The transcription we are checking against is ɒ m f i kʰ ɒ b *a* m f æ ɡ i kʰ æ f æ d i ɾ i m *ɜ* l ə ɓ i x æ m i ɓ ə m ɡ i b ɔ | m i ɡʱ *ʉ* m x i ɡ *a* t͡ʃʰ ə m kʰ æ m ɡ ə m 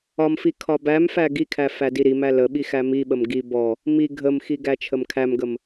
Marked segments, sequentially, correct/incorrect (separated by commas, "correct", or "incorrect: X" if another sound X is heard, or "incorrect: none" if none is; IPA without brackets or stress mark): incorrect: æ, incorrect: æ, incorrect: ə, incorrect: æ